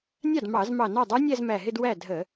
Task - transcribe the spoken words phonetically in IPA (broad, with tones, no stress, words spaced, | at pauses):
nʲɑ˥˩d mɑ˧˩˧z mɑ˧˩nɑ˥˩dˤə˞˦˥nʲæ˥˧z mæ˧˩ɦɪ˥˧d wæ˥˩ dʱə˧˩˧